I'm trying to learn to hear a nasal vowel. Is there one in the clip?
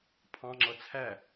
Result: yes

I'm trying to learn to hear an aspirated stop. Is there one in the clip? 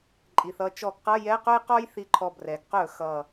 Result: yes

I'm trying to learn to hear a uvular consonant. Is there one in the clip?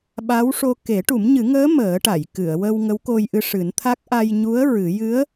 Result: no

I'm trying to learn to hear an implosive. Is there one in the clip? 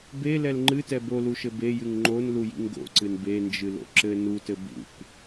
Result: no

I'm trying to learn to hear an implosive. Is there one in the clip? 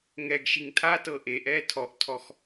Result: no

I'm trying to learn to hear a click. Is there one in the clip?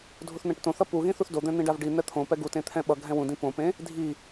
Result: no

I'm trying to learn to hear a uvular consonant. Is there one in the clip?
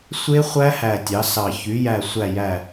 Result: yes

